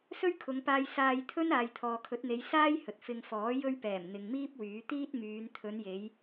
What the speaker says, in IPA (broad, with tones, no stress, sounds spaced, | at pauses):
s ɵ˥ ɥ kʰ ʊ˨˧ ŋ p aː˧ j s aː˧ j t̪ʰ ɵ˥ n aː˨ j t̪ʰ ɔː˨ kʰ ɵ˨˥ t̚ n̪ e˨˧ j s aː˥ j h ɵ˨ t̚ f ɪ˧ ŋ f ɔː˨˥ j ɵ˧ ɥ p ɛː˨˩ m n̪ ɪ˨ ŋ m iː˥ p̚ w yː˨˥ t̪ iː˥ t̚ m yː˨˧ n t̪ʰ ɵ˨˧ n j e˨˧ j